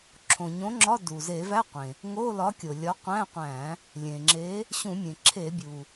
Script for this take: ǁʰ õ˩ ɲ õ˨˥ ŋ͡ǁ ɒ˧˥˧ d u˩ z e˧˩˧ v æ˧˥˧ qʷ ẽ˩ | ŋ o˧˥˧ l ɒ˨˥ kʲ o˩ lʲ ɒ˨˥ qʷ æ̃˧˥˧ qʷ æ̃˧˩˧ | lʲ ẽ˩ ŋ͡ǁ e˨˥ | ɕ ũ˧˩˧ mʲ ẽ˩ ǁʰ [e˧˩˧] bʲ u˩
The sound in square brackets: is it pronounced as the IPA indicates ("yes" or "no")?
yes